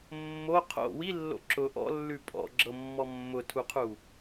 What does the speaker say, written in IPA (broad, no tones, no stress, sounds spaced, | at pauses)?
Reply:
mː o qʰ o̰ w i lː o̰ ǁ ʊ ʔ ɔ̰ lː ʉ pʼ ɔ̰ ɡ͡ǁ ɤ mː ɔ mː ʊ tʰ u qʰ u